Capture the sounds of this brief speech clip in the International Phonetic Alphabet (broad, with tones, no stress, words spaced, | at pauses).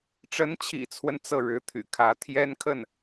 ʈ͡ʂə˧˥nt͡ɕʰḭ˨˩t͡sʰwə˦n t͡sɤ˥˩ɻɻ̩˧˥t̪ʰy̰˨˩kʰä˧˥ t̪ʰjɛ˥nkʰə˥˩n